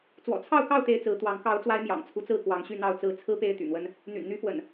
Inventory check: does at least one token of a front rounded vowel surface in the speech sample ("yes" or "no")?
yes